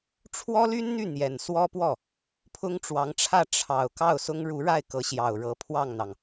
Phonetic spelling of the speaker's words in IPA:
ʈ͡ʂʰ w ɔ˥ l y˥ n n̪ y˥˩ n̪ j ɛ˨˩ n s w ɔ˥ p w ɔ˥˩ | pʰ ʊ˥ ŋ ʈ͡ʂ w ɑ˧˥ ŋ ʈ͡ʂʰ ä˥˩ ʈ͡ʂʰ ɑ˨˩ ʊ̯ k ɑ˥˩ ʊ̯ s ʊ˥ ŋ ɻ u˧˥ ɻ a˥˩ ɪ̯ k ɤ˧˥ ɕ j ɑ˨˩ ʊ̯ ɻ ɤ˧˥ pʰ w ɑ˥˩ ŋ n̪ ɑ˩ ŋ

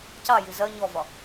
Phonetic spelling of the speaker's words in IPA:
c ɑ j i z ɜ ɲ ɔ v ɒ

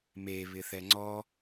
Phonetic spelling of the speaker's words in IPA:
m e β ɪ θ ɛ ŋ͡ǀ ɔ

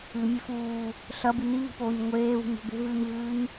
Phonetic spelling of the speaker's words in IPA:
ɨ mʲ e f uː | ɬ ɐ b ɨ n i β i̤ p oː ɲ ŋʷ eː β ṳ ɲ o̤ b e̤ v ʉː ɲ v ʉː ɲ

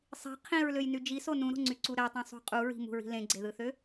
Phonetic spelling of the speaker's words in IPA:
sˤ i̤ qʰ ĩ ɹ l ø j n y d͡ʒ i s o n ũ ɾ o̤ ŋ͡ǀ y ǀ u ɾ æ tˤ ũ sˤ ṳ qʼ u ɹ i̤ m ṳ ɹ i̤ l ẽ ɡ͡ǀ e ð ɯ θ ø

